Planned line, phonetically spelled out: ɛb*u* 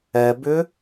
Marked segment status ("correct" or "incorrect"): incorrect